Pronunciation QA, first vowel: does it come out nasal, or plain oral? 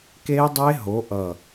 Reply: oral